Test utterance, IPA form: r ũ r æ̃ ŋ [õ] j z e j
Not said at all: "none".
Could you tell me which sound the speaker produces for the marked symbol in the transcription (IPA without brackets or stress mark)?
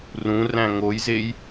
o